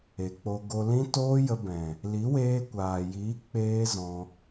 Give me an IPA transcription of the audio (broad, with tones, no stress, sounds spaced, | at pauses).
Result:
e˨ k͡p o˧ ɡ o˧ l ĩ˦ t oː˦ j ə˧ b ɛ̃˨ | l i˨˦ w eː˧ kʷ aː˨ j iː˨˦ k͡p eː˦ z ɔ̃˧